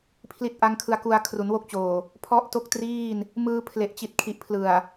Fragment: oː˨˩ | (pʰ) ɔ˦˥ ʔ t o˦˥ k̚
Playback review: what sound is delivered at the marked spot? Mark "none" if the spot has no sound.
pʰ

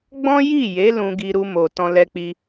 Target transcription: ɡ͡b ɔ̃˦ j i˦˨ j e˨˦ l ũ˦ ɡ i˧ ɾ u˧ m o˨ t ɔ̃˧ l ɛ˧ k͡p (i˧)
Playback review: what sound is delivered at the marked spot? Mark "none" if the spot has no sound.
i˧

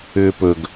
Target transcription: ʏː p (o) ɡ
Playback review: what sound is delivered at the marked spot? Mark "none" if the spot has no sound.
ɵ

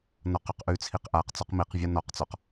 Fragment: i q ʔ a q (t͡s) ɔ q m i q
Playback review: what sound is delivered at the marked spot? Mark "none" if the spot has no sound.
t͡s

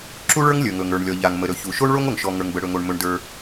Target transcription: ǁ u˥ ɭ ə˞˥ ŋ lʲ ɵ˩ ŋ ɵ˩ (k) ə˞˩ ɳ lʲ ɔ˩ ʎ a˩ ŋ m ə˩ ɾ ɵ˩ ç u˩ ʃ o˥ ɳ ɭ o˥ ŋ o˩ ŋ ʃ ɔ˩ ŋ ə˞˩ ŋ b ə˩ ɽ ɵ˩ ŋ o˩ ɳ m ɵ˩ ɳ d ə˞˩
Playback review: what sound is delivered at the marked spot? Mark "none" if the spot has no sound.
ŋ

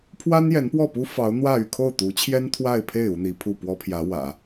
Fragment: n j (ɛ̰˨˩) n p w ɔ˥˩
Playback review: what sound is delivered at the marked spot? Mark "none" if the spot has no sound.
ɛ˧˥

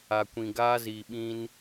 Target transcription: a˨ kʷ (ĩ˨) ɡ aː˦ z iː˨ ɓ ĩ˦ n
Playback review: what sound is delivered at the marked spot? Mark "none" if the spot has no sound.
ĩ˨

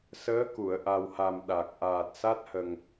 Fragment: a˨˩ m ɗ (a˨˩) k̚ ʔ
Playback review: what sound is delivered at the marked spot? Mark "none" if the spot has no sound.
a˨˩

